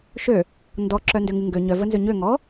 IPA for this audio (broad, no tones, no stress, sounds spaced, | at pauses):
ʃ ø | n d ɔ ǁ œ n d ø ŋ ɨ ŋ ɡ ø ɲ œ v ə n z ø ɲ ø ŋ ɔ